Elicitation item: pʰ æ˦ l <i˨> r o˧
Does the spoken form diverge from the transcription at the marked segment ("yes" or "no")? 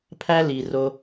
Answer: no